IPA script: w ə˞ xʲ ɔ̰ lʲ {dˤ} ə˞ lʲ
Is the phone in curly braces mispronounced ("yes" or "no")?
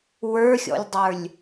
no